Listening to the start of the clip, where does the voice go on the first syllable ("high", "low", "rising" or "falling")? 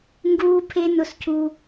high